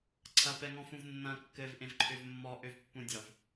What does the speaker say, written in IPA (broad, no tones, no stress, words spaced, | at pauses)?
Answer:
ǀʰɐpɛŋɔ̃fũv nːɐ̃ kːɘvʔẽvǃʰøv mːɔʔøvpːũdʲɒv